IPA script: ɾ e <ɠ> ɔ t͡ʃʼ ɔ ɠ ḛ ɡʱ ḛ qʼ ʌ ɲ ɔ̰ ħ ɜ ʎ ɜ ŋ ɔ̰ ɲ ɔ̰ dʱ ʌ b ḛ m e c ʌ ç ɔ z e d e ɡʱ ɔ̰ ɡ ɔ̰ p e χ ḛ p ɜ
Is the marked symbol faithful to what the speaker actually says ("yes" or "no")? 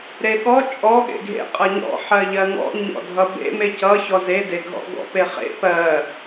yes